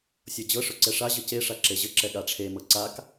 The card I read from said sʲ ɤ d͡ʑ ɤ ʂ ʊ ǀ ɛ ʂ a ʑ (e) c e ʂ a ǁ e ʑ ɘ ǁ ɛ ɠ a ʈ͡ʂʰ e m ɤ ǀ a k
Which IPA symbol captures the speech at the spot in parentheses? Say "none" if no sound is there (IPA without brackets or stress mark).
ɘ